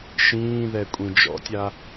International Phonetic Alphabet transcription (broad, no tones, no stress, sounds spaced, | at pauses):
ʃ ĩː ð ɛ kʷʼ ĩ d͡ʒ ɔ̰ tʲ a